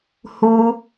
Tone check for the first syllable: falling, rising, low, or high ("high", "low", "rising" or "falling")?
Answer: high